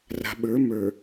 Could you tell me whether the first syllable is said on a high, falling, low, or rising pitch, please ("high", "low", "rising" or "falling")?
low